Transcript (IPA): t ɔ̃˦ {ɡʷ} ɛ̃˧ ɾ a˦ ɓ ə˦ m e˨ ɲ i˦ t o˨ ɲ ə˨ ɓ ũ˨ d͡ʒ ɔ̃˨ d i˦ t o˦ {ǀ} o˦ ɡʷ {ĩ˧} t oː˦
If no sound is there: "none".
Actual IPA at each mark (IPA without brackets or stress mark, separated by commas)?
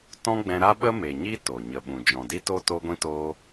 ɡ͡b, t, ĩ˦